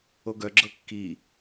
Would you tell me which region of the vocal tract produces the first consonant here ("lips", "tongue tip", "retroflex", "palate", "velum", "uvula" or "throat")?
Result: velum